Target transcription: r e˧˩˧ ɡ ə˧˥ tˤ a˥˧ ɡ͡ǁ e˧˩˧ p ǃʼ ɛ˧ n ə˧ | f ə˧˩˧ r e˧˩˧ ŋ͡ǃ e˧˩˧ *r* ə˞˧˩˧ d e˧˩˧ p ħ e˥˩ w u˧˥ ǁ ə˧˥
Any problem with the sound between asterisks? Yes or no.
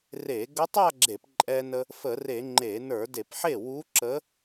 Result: yes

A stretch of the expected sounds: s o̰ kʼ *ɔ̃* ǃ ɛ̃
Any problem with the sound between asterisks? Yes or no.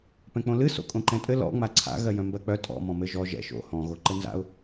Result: yes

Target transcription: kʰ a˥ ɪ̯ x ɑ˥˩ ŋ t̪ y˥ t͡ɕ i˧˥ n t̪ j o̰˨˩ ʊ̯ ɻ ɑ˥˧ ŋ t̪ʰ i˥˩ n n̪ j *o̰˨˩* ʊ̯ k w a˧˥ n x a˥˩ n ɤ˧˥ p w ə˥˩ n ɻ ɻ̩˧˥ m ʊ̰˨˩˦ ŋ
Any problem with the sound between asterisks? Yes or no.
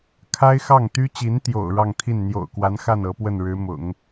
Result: no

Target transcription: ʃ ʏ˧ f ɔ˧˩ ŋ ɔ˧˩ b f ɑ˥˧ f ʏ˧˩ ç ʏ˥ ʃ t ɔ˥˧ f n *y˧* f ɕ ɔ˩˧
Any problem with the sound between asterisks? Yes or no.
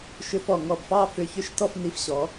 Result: yes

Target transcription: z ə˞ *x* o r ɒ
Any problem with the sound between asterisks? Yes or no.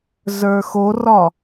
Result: no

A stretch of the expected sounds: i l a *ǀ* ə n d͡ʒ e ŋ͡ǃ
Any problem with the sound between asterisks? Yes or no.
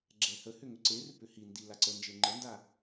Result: no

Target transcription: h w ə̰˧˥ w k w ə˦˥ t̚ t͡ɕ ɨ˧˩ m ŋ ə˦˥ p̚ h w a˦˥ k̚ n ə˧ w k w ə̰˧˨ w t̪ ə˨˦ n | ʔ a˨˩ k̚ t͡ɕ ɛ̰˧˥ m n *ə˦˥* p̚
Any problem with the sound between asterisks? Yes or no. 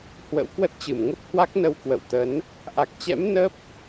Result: no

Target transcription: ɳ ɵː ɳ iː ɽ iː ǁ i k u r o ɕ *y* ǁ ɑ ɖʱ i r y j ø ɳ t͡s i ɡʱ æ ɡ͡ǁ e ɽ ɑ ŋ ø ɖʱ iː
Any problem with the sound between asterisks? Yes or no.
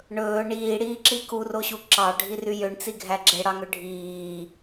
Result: yes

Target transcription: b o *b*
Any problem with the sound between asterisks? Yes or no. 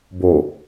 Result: yes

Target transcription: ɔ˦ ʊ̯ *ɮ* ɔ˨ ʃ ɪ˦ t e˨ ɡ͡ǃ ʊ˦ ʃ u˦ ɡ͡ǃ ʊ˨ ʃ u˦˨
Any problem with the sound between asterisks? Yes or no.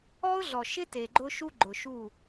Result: no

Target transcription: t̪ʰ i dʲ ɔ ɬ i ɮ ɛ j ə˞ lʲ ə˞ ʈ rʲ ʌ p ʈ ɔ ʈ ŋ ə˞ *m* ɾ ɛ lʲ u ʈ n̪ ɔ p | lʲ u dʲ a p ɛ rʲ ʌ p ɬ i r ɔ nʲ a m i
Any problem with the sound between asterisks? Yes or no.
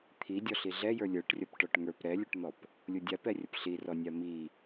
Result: yes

